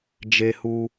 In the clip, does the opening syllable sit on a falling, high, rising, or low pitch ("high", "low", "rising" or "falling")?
high